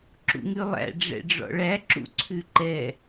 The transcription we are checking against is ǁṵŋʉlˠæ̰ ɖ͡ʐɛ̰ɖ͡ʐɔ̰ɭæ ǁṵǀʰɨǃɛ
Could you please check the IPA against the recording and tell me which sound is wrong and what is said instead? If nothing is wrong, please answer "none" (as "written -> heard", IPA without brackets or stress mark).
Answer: ɨ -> ʉ